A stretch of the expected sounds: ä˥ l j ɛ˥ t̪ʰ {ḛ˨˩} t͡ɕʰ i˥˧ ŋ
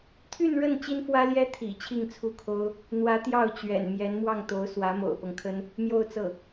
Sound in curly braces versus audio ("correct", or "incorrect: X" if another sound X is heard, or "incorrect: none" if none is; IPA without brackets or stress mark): incorrect: ḭ˨˩